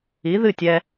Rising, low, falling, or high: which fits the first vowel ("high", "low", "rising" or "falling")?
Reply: rising